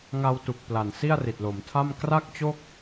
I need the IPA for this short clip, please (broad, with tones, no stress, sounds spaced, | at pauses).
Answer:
ŋ a˧ w t u˨˩ k̚ p l a˨˩ n s i˥˩ a̯ r i˨˩ t̚ l o˩˦ m tʰ a˥˩ m k r a˥˩ k̚ t͡ɕ o˥˩ k̚